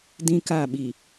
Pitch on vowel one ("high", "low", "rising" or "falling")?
high